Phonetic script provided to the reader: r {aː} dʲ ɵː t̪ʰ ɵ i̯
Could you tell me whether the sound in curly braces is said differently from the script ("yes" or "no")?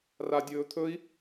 yes